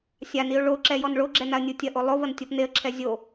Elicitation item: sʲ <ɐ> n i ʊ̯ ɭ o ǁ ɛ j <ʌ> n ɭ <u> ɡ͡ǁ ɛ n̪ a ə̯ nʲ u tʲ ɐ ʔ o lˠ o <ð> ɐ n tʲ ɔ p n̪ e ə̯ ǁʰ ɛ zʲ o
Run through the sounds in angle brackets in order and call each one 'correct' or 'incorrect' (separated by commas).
incorrect, incorrect, incorrect, incorrect